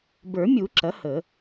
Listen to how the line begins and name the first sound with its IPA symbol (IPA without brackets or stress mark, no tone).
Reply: b